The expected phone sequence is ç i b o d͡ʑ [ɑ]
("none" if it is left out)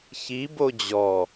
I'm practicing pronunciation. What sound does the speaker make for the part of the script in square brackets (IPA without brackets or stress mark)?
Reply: ɔ